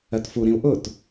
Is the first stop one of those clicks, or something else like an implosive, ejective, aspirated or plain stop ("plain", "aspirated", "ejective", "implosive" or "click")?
plain